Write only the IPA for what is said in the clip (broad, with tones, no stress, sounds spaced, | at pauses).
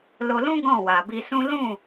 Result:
l o˧ l ũ˦ ɡ ɔ̃˦˨ w a˨ b i˧ s ũ˦ l ũ˦˨